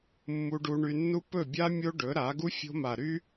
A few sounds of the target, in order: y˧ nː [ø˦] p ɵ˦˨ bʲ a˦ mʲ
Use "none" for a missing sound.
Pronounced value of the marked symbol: u˦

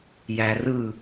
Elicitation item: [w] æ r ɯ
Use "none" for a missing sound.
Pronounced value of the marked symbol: j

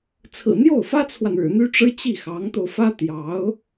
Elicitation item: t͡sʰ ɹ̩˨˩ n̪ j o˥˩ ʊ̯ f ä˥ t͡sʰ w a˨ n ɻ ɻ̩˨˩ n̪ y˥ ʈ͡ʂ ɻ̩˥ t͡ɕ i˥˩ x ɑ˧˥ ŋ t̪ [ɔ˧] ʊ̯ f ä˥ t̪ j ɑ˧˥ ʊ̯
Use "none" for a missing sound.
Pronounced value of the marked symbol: o˧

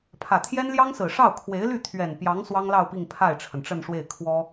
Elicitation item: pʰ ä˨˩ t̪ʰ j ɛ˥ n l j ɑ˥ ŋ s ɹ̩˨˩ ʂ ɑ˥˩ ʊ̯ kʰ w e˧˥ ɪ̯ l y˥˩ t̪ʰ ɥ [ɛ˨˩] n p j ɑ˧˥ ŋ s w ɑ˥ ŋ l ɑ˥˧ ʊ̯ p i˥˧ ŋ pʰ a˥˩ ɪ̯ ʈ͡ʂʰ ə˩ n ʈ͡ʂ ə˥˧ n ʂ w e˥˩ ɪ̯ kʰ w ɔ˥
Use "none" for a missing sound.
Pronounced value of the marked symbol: ɛ˨˩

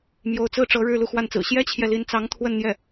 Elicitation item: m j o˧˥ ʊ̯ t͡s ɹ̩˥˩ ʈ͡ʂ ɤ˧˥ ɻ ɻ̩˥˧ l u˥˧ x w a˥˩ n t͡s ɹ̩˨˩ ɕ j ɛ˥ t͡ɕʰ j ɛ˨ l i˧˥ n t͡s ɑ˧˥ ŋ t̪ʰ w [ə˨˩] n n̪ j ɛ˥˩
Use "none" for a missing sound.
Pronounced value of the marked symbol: ə˥˧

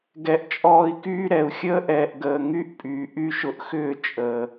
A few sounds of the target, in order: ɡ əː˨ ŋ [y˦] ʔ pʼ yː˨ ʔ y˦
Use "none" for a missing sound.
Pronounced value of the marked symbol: y˦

